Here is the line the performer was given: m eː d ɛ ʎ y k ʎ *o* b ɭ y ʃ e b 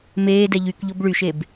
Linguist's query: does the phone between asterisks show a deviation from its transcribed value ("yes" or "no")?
no